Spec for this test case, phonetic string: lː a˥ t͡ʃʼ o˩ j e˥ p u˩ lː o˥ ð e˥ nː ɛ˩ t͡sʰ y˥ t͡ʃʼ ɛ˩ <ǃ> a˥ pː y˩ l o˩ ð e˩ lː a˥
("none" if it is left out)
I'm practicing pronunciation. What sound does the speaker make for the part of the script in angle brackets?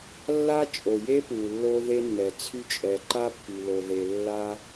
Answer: ǃ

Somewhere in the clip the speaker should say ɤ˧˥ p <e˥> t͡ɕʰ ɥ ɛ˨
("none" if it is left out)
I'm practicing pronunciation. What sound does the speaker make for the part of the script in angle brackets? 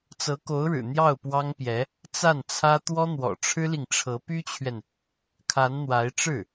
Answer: y˥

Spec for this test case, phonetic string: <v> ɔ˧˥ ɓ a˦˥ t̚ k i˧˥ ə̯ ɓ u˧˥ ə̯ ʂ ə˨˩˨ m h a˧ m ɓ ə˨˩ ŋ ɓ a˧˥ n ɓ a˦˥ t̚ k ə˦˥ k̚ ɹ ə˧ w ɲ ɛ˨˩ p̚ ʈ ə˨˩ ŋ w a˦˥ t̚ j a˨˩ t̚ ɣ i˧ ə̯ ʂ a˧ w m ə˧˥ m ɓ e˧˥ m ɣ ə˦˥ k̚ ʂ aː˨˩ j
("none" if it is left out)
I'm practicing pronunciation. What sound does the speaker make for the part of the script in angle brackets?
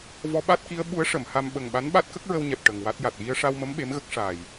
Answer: v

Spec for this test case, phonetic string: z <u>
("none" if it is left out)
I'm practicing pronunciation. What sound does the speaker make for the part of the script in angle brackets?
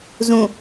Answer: ũ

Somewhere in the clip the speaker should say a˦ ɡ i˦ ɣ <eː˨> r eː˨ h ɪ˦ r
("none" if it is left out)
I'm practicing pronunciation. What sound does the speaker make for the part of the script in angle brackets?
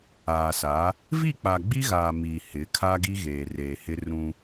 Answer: eː˨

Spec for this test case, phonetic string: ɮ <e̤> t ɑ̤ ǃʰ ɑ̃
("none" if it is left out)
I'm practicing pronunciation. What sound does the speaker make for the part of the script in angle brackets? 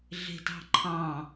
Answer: e̤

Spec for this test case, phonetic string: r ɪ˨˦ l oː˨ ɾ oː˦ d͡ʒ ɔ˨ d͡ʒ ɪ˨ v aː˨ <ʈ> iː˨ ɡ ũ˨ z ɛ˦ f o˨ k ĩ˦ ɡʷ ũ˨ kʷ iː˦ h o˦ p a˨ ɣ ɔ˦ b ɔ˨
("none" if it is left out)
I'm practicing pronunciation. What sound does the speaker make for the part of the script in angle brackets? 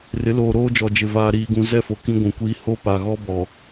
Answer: ɾ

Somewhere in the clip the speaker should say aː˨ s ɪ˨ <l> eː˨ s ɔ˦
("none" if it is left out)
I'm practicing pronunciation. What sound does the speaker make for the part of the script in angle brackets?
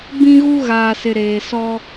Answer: ɾ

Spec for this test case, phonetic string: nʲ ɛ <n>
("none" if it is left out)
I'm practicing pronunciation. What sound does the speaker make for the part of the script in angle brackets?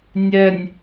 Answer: nʲ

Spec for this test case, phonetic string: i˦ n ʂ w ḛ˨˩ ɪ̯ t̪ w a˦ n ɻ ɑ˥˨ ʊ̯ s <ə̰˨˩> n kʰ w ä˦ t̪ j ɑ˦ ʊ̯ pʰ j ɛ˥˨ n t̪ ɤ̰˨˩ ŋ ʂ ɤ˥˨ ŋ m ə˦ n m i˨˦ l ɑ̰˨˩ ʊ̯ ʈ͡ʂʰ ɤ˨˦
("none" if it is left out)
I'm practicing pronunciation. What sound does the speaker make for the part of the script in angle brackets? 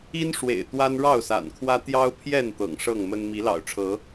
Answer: a̰˨˩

